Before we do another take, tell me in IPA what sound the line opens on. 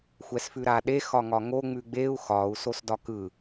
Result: xʷ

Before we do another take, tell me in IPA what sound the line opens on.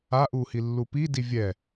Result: a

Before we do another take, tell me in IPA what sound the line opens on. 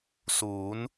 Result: s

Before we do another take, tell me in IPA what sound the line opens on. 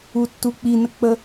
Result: u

